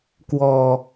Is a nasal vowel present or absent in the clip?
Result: absent